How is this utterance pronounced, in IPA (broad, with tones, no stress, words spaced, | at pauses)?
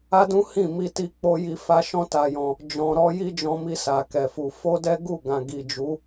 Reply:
a˦dũ˦ hĩ˦˨mi˧ ti˧k͡po˧ji˧ fa˦ʃɔ̃˦ta˧jɔ̃˧ | d͡ʒɔ̃˨ɾɔ˨˦ ji˦d͡ʒɔ̃˧mi˧ sa˨kɛ˨fu˨ fo˧ dɛ˦ɡu˦˨ɡã˨ ɡi˨d͡ʒu˨˦